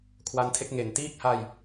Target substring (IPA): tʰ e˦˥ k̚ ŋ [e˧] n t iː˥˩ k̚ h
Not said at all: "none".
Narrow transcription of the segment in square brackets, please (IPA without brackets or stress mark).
e˩˦